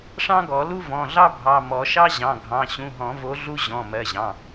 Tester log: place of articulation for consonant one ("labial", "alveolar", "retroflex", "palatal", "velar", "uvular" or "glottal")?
retroflex